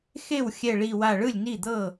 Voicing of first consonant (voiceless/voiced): voiceless